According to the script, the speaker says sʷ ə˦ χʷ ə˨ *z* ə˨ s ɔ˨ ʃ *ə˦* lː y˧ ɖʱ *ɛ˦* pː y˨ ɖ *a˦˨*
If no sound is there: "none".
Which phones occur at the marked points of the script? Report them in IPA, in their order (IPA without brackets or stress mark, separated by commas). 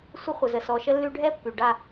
z, ə˧, ɛ˦, a˦˨